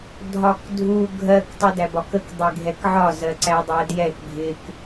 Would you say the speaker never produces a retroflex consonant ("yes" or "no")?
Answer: yes